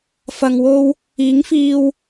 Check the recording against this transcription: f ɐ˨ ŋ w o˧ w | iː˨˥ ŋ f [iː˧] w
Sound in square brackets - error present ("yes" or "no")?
no